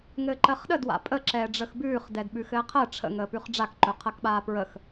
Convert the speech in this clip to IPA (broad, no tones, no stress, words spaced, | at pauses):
ŋɘːǃɜχɗə dwa̰pʼə ǁɛːɖ͡ʐəxbʉːχ dɛdɓʉxɘːqʰɜ ʈ͡ʂʰə̰ŋəːpʉχ ɖ͡ʐakǃɵqʰɜkɓaː pɹəx